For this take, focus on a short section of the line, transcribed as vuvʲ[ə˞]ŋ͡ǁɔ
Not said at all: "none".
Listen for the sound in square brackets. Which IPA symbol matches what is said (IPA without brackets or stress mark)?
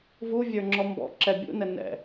ə˞